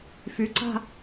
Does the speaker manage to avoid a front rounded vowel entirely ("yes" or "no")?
no